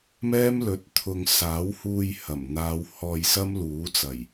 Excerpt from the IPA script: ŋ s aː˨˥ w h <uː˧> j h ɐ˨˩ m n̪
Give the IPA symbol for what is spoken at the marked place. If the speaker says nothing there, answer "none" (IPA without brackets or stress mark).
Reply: uː˧